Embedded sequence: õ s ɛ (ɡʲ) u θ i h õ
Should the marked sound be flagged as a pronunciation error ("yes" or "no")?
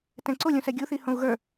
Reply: no